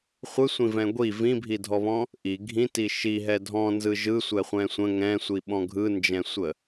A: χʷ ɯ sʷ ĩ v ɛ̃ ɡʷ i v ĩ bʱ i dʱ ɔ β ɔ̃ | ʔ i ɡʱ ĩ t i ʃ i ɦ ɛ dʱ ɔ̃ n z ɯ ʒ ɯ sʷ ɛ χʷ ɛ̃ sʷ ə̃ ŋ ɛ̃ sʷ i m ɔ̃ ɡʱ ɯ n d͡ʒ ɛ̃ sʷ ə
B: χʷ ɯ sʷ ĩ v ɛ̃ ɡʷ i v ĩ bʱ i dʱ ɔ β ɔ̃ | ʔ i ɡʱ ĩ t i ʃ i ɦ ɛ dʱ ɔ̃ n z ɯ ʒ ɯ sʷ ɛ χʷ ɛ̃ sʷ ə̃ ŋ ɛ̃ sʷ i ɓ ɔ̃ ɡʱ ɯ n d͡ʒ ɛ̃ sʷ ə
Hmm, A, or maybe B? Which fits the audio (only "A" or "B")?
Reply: B